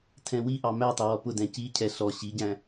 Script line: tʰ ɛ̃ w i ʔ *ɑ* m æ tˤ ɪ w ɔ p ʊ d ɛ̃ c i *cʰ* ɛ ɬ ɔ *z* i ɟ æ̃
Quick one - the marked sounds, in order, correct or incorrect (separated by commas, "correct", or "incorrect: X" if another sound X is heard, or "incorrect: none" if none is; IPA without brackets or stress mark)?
correct, correct, incorrect: ɕ